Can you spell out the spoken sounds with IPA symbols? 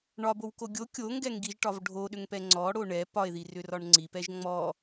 ɳ ɒ b o w k o ɡʲ o kʲ o ŋ ɡ ɛ ŋ ɡ i ʒ ʈ ɒ v ɖʱ o ɗ ʏ ŋ p ɛ ŋ͡ǀ ɔ ɽ o ɳ ɛ p ɒ e̯ ð i r ʏ r ɒ ɳ ŋ͡ǀ i p ɛ ʒ ŋ͡m ɔ

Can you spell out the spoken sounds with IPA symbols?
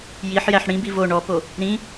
j i ħ j æ ħ ɽ ĩ b i v o ɳ ɔ p o | ɾ ĩ

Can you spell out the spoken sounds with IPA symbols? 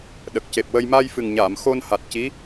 ɗ ə˨˩ k̚ c e˨˩ p̚ w ə˧ j m a˧ j f ɨ˨˩ ŋ ɲ aː˨˩˨ m x o˧ n h a˨˩ t̚ c i˧˥

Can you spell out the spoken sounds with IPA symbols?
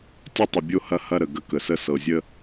tʲ ɤ˦ tˤ ə˨ bʲ o˦ h ɐ˦ h ɐ˦ ɾ ə˨ ɡ ə˦ k ə˨ s ə˦ s ɤ˨ zʲ ə˦

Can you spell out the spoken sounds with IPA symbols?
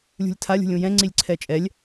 lʲ ṳ lʲ tʰ a lʲ ṳ lʲ ũ j ɛ̃ ŋ͡ǀ i lʲ ǀʰ ɛ t͡ʃʼ ɛ lʲ

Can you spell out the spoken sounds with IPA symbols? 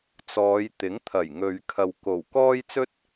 t͡s ɔː˨˧ j t̪ ɪ˨˥ ŋ t̪ʰ ɐ˨˩ j ŋ ɵ˨ ɥ kʰ ɐ˨ w k o˨˩ w k ɔː˥ j t͡s ɵ˥ t̚

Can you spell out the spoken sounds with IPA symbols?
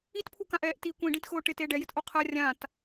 i t pʰ u k ã ʔ ɛː ʔ t i kʷ ĩ ɖ ĩ t x ʊː ʈ ɪ t e ɖ ɛ j ɪ t ʔ o qʰ a rʲ ã t

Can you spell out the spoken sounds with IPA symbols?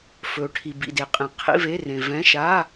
f ɵ˨ ʈʰ i˨ b ḭ˨ d e˨ qʼ ĩ˨ qʰ ḭ˧˥˧ v e˧˥˧ r ẽ˨ v ɛ̃˧˥˧ ʃ a˧˥˧

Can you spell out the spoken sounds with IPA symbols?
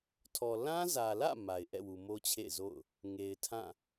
tʰ ɔ˨ l ã˦ z ä˨ l ä̰˦˨ m a˨ ɪ̯ ʔ ɛ̰˦˨ w u˨ m o˦ t͡ɕʰ ḛ˦˨ ɪ̯ z o̰˦˨ ʊ̯ | ŋ e˨ ɪ̯ tʰ ã˦˨

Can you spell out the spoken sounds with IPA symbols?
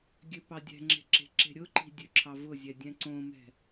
ɡʲ ø p ɑ dʲ ɛ̤ ŋ͡ǁ e̤ ǁ e̤ ǁ e̤ ɾʲ ʊ ǃ i̤ dʲ ø ǁʰ ɑ v ʊ zʲ ɛ dʲ ɛ̃ ǀ õ m ɛ̤

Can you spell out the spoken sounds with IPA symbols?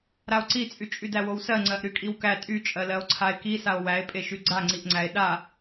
ɾ a o̯ ǀ i t͡sʼ y t͡ʃʼ y d æ w o w s ɜ ŋ͡ǀ ɜ ʔ ɾ y kʼ i w k æ tʼ y t͡ʃʼ ɜ l ɜ o̯ ǀʰ a e̯ k i s a o̯ w æ e̯ pʼ e ʃ y ɡ͡ǀ a ŋ͡ǀ i ʔ ŋ͡ǀ æ e̯ ɗ a

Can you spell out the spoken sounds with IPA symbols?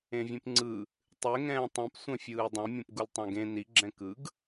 ẽ vʲ ẽ p ŋ͡ǀ ɯ | tˤ e ŋ ɛ̃ː tˤ ẽ p sʷ ɛ̃ fʲ ɯː dˤ ũ mʲ ũ p ɡ u l tˤ õ ɡ ẽ n i ɡ͡ǁ ɛ̃ k ɯ ɡ

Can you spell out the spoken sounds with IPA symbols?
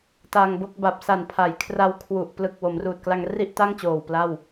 t a˧ ŋ b o˥˩ k̚ b a˨˩ p̚ s a˨˩ n pʰ a˩˦ j kʰ r a˧ w kʰ w u˨˩ ʔ p l ɯ˨˩ k̚ w o˩˦ m r uː˨˩ t̚ k l a˧ ŋ r i˥˩ ʔ t a˥˩ ŋ t͡ɕ oː˨˩ w p l a˥˩ w

